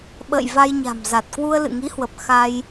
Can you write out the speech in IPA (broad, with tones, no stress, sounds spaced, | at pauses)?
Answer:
ɓ ə̰ː˧˨ j v a˧ j ɲ a̤˨˩ m z a˨˩ t̚ k w u˧ ə̯ l ɨ̰˧˨ ŋ i˨˦ h w ə˨˩ p̚ x a˧ j